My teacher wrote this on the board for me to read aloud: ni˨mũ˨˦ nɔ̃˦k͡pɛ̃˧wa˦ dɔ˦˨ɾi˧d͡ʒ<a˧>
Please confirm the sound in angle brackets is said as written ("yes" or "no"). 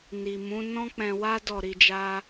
no